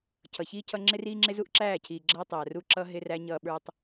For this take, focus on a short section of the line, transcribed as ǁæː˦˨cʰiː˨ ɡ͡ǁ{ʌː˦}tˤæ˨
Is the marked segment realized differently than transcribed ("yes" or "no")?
no